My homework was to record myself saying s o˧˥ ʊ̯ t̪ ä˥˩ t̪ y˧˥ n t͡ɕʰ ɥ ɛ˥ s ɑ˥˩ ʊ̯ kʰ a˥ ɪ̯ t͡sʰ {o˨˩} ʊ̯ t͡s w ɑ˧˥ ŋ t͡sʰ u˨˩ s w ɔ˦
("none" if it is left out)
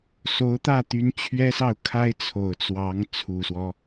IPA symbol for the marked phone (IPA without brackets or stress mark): o˨˩